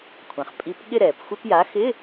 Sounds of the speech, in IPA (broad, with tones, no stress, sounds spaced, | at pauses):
kʷʰ ã˩ χ pʼ i˩˥ p ɠ ɪ˦˨ ɾ ɛː˩ p xʷ ɪ˧˥˧ p j a˩˥ x ɪ˧˥˧